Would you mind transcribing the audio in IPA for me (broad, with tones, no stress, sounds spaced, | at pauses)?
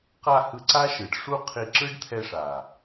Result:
q a˧ h ɯ˧ ǀ a˦ ʃ ɯ˨ ɖ ʂ u˦ qʰ i˧ ǁ ɯ˦ ɖ t̪ʰ ɛ˧ ʂ a˨